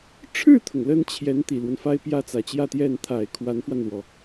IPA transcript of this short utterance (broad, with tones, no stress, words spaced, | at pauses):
ʈ͡ʂʰɻ̩˥˩t̪ʰʊ˩ŋ lə˥nt͡ɕʰjɛ˧˥nt̪i˨˩lwə˦n fa˥ɪ̯pjä˥ t͡sä˨˩t͡ɕjä˥˧t̪jɛ˥˩n t̪ʰa˨˩ɪ̯ kʰwa˧˥nfwa˧nlwɔ˩